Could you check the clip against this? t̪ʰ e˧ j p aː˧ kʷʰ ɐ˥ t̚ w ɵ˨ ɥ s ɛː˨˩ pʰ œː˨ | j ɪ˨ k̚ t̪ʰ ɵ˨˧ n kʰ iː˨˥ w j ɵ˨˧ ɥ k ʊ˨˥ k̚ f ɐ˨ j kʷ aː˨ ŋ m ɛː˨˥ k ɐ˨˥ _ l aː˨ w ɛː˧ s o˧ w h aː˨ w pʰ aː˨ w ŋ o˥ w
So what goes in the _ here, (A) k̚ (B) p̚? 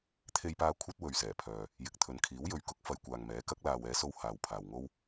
A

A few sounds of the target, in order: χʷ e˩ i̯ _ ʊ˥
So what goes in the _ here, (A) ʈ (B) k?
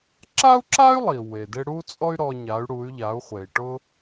A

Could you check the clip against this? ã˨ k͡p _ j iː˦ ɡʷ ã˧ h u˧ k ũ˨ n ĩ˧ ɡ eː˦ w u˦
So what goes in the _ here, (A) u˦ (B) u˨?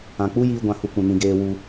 A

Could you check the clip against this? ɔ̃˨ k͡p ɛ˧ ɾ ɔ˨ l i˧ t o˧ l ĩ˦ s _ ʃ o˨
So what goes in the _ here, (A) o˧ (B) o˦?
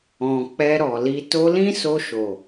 A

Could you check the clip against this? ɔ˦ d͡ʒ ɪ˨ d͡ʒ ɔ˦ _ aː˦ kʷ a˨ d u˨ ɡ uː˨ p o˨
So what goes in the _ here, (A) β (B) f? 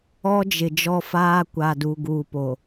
B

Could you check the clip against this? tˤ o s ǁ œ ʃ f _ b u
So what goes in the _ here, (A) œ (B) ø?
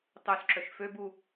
B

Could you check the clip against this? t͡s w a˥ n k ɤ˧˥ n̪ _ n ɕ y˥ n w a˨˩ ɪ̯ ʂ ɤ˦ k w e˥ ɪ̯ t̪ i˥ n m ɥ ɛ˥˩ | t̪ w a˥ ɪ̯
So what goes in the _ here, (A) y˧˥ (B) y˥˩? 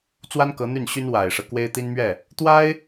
B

